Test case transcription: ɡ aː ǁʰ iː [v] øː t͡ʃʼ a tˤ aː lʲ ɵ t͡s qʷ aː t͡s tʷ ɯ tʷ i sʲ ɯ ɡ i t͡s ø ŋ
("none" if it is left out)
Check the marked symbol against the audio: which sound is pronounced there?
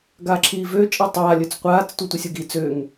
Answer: v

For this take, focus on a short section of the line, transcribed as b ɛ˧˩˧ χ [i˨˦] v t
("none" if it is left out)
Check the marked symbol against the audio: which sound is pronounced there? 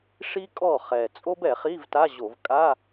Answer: i˧˥˧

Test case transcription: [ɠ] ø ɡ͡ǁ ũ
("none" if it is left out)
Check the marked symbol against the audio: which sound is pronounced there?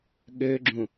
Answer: ɠ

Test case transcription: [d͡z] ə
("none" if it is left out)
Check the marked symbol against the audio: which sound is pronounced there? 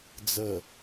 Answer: d͡z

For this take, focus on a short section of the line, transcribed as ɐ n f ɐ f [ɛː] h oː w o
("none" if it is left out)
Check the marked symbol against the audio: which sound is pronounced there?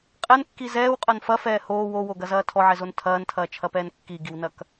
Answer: ɛː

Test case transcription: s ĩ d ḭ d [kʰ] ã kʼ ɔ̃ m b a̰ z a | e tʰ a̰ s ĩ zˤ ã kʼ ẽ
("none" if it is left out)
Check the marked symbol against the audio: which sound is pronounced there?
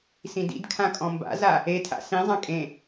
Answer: kʰ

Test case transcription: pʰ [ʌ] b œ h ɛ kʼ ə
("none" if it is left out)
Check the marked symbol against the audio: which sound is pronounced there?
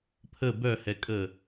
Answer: ə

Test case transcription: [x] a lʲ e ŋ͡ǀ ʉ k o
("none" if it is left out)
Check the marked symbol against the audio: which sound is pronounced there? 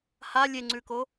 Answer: h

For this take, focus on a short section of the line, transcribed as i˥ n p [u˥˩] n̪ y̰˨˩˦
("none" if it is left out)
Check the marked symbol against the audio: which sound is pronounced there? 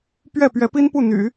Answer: u˥˩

